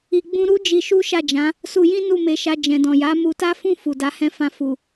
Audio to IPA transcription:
i˧ ɡ͡b ũ˦ ɾ u˦ d͡ʒ i˧ ʃ u˦ ʃ a˦˨ d͡ʒ ã˨˦ | s u˧ j ĩ˦ n u˦˨ m e˨˦ ʃ a˧ d͡ʒ ɛ̃˨ d ɔ̃˨ j a˨˦ m u˧ t a˦ f ũ˦˨ f u˨ d a˨˦ h ɛ̃˦˨ f ã˧ f u˨

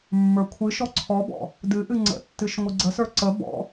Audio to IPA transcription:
mː ə˞ kʷʰ ɨ ʃ ɔ ǀʰ ɔ b ɔ̰ | d ɨ ʔ ɨ ŋ͡ǀ ə̰ tː ɨ ʃ ŋʷ ɨ ɡ͡ǀ ə s ə˞ ǀ ə b ɔ̰

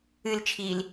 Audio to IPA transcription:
ɨ l t͡ʃʰ iː l

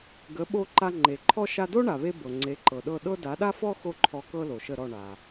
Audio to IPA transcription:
ɡ ə˩˥ ɓ o˧ ǃ a˧ ŋ͡ǃ e˩ ǃʰ ɔ˥ ʃ a˧ d o˥ ɳ a˩ β e˧ b ɤ˩ ŋ͡ǀ e˩˥ ǃ ɤ˩ ɗ ɤ˥˩ ɗ ɤ˥ d a˩˥ ɗ a˥ f ɔ˥ x o˥ ǃʰ ɔ˧ k ɤ˥ l o˩ ʃ ə˥˩ ɾ ɔ˥˩ ɳ a˩

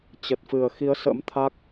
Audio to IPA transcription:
t͡ɕ ə˨˩ t̚ f ɨ˨˩ ə̯ x i˨˦ ə̯ s ə̰˧˥ m t̪ʰ a˦˥ k̚

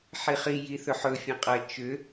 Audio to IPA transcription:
ħ i χ i j i θ ɵ ħ ɵ fʲ ɐ̃ qʼ ɐ t͡ʃ ʏ

